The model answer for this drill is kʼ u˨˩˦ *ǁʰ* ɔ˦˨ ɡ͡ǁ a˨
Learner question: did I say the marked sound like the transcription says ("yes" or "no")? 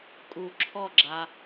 yes